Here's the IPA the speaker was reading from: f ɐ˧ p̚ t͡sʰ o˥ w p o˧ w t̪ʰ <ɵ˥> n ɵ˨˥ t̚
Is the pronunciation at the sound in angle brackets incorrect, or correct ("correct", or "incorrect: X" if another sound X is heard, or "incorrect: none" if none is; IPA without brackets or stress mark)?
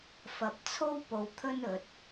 correct